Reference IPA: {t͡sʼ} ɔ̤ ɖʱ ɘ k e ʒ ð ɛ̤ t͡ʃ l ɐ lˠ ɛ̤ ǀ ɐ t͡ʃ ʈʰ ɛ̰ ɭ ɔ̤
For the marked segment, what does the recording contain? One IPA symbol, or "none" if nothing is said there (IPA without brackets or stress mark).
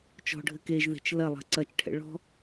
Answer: t͡ʃ